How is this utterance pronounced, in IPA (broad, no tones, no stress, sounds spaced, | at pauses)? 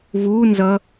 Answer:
v u n z ʌ